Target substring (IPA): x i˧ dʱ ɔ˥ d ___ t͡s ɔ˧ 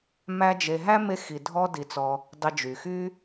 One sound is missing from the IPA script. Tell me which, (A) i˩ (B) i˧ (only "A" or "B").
B